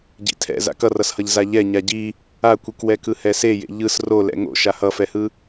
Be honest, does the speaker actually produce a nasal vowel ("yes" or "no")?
no